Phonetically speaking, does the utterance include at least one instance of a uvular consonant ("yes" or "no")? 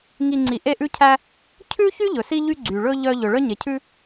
no